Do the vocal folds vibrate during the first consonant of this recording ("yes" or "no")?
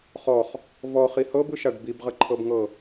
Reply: no